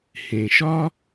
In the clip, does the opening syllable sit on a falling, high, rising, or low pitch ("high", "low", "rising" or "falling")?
low